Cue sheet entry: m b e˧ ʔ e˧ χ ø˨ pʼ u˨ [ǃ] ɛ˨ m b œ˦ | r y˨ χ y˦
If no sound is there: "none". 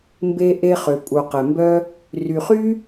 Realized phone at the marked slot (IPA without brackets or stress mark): q